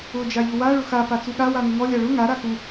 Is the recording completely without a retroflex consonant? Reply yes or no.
no